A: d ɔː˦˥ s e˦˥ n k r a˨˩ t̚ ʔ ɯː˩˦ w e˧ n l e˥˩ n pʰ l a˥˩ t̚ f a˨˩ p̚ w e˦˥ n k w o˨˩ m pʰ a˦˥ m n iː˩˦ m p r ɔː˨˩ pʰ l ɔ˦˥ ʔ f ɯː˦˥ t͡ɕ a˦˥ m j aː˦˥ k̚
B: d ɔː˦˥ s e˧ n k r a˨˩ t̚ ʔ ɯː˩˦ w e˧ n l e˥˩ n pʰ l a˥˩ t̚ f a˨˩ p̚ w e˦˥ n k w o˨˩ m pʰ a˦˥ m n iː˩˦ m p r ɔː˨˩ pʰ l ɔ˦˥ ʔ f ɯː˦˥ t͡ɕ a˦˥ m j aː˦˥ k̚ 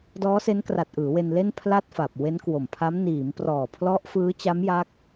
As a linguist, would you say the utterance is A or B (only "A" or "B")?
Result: A